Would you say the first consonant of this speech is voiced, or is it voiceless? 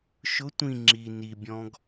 voiceless